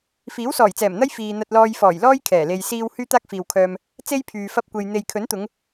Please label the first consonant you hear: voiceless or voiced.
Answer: voiceless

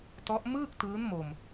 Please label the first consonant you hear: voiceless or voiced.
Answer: voiceless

